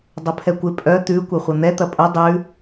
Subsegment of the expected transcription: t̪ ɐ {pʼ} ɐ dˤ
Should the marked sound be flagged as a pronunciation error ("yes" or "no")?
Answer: no